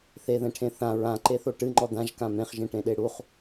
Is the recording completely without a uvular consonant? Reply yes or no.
no